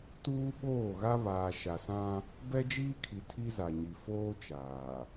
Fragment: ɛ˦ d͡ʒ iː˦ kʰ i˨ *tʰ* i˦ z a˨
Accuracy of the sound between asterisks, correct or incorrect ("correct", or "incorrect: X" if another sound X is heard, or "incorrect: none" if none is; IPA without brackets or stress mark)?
correct